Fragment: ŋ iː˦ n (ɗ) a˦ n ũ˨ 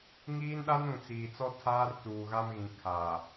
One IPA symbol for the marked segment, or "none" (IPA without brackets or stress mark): ɗ